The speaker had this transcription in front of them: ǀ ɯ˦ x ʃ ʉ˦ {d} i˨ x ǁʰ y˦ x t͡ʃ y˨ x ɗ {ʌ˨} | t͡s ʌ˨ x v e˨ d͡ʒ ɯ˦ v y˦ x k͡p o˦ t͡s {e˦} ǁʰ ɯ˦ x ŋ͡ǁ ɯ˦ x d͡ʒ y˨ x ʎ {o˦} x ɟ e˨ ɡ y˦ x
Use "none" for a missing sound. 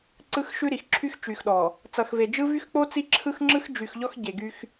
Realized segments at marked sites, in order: ɾ, ɔ˨, i˦, ɔ˦

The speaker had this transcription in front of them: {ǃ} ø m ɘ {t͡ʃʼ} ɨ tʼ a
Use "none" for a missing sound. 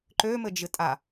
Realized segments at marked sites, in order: ǃ, d͡ʒ

